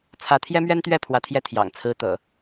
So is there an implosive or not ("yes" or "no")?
no